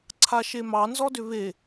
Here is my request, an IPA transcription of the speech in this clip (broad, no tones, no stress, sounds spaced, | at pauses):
ǀʰ a ʃ e m ɑ n z ɔ d ʏ β e